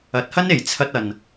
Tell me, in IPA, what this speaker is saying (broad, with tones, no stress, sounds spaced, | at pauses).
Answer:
ɐ˨˥ t̚ h ɐ˥ n e˨˩ j t͡sʰ ɐ˧ t̚ ɐ˨ n